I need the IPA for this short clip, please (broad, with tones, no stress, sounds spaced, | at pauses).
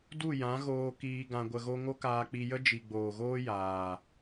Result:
d u˦˨ j ã˨˦ ɣ oː˧ k iː˧ ɡ ã˧ ɡʷ ə˧ ɣ o˦ ŋ o˦ k aː˧ k͡p i˧ j ə˦ d͡ʒ i˨ ɡ͡b oː˨ ɣ oː˦ j aː˨